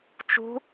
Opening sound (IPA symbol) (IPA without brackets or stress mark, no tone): t͡ʃ